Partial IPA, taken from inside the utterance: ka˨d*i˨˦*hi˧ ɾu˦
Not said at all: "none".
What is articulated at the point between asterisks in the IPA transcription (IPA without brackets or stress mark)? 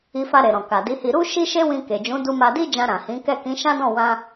i˨˦